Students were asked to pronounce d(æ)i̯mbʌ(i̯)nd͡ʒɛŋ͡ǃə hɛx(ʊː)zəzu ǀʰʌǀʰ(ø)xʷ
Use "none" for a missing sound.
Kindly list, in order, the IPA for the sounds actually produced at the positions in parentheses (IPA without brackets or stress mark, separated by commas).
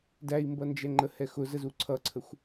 æ, none, ʊ, ə